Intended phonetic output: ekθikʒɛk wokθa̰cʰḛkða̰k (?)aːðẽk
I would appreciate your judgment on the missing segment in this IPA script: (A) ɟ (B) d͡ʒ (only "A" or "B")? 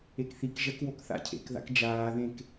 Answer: B